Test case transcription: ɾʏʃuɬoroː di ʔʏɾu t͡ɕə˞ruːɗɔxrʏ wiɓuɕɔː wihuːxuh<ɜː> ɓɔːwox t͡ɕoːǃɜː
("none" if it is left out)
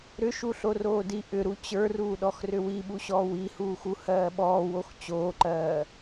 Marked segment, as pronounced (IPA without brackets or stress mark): ɜː